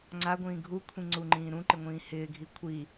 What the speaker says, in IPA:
ŋ͡ǀ a ɡʷ ĩː ɡʱ u kʷʰ ĩ ŋ͡ǀ u ŋ͡ǃ ĩː ɾ ũ ǃ ɪ ŋʷ ĩː h ɪː ɡʱ i kʷʰ i

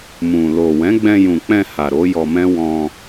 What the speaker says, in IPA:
m ũ˨ l o˨ w ɛ̃˨˦ ɡ͡b ɛ̃˧ j ũ˨ k͡p ɛ̃˧ h a˨ ɾ o˨˦ j ɔ˧ m ɛ̃˦ w ɔ̃˧

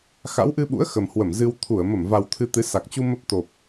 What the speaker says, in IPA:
x a̰˧˥ w ʔ ɨ˧ ɓ ṵ˧˥ ə̯ x ə˨˩ m h w ə˧˩ m z ɨ˧ w t̪ʰ u˧˩ ə̯ m ə˧˩ m v a˨˩ w t̪ʰ ɨ˧ t̪ ɨ˨˦ s a˨˩ k̚ t͡ɕ u˧ m ə˦˥ p̚ t̪ o˨˩ p̚

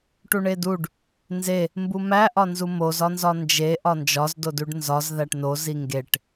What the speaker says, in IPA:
ʈ u ɳ e d u ɖ | n z e | m b u m æ ʔ ɒ n z u m o z ɒ n z ɒ n d͡ʒ e ʔ ɒ n d͡ʒ ɒ z d o d u ɖ n z ɒ z ð æ ʈ n o z i ŋ ɡ e ʈ

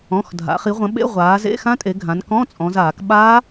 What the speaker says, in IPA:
ɔ̃˩˧˩ x dʱ a̰˩˧ χ i˩˧ ʁʷ ɐ̃˩˧ ɓ ḛ˧˥˧ ʁʷ aː˩˧ z ḛ˧˥˧ x ã˦˥ tʼ e˩˧ ɡʱ ã˩˧ n k ɔ̃˧˥˧ t͡sʼ ɔ̃˩˧ z aː˧˩˧ k ɓ aː˦˥

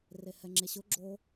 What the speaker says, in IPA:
r e h ɛ ŋ͡ǁ e ɕ ʊ ɡ͡ǁ o

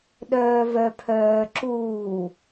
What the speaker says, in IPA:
ɗ œː v œ pʰ œː ǁ uː

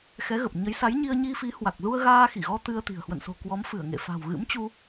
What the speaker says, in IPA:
x ɛ˨˦ ɣ ə˨˩ p̚ ɲ ə˨˦ j s a˨˦ j ɲ i˧ ə̯ ɲ i˧ f i˨˦ h w a˨˩ k̚ z u˧ ə̯ ɣ aː˧ x i˧˩ ɣ ɔ˧ t̪ ɨ˧ ə̯ t̪ i̤˨˩ ə̯ h w ə̰˧˨ n s o̤˨˩ k w ɔ˨˦ m f ɨ˧˩ ə̯ ŋ ḛ˧˨ f a̤˨˩ w ɣ ɨ̰˧˥ m t͡ɕ u˧

